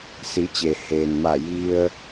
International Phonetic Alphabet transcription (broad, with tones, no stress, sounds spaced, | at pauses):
s i˩˧ t͡ɕ eː˩ h eː˩ n m a˧˩ j i˧ ə̯